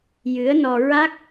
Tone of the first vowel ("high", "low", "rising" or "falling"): rising